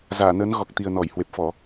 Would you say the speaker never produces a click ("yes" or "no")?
yes